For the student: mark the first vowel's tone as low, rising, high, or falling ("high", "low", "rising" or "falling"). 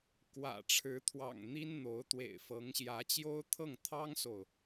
low